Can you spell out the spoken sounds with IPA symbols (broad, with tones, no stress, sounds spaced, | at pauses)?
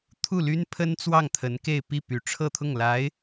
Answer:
t̪ʰ u˥˩ l y˥ n pʰ ə˥ n t͡s w ɑ˥˩ ŋ t̪ʰ ə˧˥ n k e˥˧ ɪ̯ p i˥˩ p y˧˥ ʈ͡ʂʰ ɤ˥˧ t̪ʰ ʊ˥˩ ŋ l a˧˥ ɪ̯